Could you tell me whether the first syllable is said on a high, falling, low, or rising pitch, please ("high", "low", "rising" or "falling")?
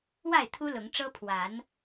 falling